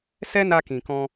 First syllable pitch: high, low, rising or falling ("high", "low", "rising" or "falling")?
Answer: high